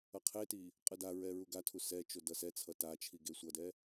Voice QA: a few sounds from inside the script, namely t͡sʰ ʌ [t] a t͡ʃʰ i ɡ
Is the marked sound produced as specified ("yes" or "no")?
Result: yes